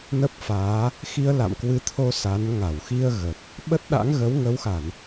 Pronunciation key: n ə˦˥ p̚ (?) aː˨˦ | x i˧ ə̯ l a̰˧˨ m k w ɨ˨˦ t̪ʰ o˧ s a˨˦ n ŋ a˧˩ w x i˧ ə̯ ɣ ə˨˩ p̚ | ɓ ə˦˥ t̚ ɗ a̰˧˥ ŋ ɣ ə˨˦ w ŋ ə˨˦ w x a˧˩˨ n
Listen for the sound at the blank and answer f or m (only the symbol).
f